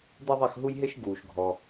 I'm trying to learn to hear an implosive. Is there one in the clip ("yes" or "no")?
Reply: no